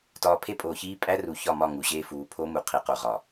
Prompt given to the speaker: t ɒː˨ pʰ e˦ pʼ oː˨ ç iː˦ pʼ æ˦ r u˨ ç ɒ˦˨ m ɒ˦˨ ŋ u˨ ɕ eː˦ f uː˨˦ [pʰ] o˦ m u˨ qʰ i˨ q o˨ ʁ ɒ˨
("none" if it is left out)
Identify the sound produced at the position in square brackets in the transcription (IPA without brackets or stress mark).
pʰ